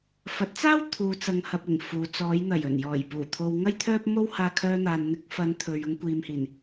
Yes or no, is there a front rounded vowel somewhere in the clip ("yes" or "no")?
yes